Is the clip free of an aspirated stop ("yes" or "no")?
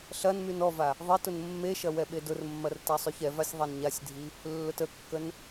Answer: yes